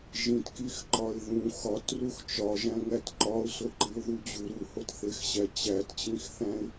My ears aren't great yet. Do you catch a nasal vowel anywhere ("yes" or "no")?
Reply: yes